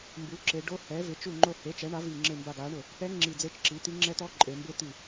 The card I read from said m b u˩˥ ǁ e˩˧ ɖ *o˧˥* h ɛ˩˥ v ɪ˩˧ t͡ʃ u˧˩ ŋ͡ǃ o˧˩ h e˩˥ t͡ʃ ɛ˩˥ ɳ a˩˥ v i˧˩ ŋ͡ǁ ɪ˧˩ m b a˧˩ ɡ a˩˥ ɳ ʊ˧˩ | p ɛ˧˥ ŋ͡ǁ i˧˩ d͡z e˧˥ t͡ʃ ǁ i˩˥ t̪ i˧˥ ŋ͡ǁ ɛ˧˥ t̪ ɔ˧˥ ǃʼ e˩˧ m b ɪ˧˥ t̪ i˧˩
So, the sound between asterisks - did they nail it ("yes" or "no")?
yes